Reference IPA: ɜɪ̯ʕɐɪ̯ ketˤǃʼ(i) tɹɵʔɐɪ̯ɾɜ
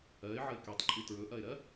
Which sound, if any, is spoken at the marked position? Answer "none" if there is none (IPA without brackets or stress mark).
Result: i